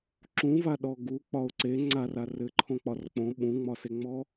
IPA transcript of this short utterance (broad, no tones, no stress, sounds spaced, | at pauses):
ǁ ũ v a ɗ ɔ ɡ u k͡p ɒ ʊ̯ ǀ e ŋ͡ǀ a r a r ɘ ǃʰ õ k͡p ɒ r k͡p õ ɓ ũ ŋ͡m ɒ s e ŋ͡m ɔ